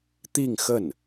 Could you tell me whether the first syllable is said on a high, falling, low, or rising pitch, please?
falling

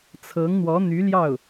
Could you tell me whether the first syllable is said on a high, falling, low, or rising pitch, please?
rising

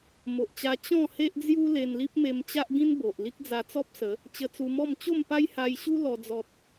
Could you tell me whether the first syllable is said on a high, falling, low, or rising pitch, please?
low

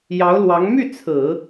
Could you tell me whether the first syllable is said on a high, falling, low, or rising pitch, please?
rising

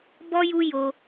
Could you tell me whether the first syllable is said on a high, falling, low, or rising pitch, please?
high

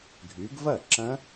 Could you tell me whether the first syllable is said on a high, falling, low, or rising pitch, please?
rising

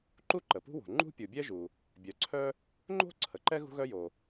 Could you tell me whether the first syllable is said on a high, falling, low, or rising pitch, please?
high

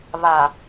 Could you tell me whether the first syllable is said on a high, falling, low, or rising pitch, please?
low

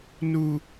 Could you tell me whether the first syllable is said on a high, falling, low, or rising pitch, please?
low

